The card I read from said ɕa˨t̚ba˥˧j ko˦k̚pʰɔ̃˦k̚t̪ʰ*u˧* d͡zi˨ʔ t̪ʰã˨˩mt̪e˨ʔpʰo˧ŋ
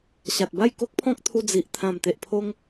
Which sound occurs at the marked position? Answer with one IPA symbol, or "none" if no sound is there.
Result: u˧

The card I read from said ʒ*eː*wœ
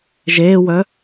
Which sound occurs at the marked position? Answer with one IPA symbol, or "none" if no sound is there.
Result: eː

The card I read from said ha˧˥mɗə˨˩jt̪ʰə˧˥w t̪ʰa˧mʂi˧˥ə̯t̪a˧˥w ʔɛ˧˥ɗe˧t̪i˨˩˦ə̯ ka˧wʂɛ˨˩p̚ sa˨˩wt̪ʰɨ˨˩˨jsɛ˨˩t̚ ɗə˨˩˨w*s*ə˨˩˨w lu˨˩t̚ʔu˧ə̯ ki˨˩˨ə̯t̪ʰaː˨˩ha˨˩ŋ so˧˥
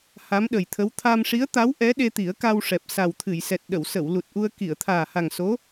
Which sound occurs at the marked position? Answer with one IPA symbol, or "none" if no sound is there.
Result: s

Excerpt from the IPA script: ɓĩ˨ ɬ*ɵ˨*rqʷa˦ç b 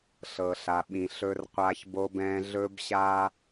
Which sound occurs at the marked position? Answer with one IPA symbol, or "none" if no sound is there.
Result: ɵ˦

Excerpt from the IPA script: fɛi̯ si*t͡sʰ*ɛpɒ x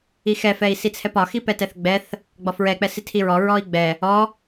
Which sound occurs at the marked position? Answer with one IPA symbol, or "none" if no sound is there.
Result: t͡sʰ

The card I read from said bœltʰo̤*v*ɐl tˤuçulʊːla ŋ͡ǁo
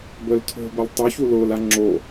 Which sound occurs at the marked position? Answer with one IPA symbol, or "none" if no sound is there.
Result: b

